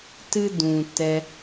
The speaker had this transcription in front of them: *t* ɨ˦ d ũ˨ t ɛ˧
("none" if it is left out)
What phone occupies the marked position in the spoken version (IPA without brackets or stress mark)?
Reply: t